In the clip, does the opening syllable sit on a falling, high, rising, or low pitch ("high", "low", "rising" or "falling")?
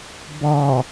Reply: low